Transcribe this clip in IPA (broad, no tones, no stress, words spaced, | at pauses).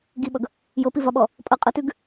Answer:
ɡiɓʌɡ | jɤpivɒɓɔ | pʼʌ qʼʌtʉɡ